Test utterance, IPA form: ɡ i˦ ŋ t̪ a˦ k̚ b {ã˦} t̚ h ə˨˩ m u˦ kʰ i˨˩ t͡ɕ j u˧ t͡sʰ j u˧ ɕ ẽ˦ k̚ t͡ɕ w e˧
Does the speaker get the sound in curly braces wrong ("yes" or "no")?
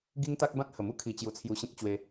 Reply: no